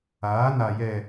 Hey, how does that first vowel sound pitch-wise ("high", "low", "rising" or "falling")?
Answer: rising